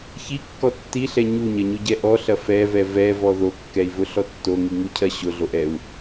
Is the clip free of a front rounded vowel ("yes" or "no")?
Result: yes